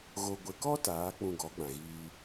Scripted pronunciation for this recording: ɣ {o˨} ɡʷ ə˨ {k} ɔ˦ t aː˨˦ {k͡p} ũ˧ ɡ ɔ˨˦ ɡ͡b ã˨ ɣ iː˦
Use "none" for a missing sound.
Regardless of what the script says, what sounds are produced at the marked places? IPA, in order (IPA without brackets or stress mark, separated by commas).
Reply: o˨, k, k͡p